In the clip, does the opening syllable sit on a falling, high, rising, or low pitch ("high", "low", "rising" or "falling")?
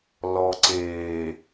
low